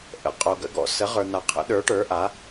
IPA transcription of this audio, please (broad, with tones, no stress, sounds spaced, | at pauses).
ʔ ə̰˨˦ qʼ o˨ ɡ ə̰˨˦ ɡ ɔ̰˨ s ə˨˦ ʁ ə˞˨ n̪ a˨ qʰ ə̰˨˦ ɗ ə˞˨˦ ʈ ə˞˨˦ ʔ a˨˦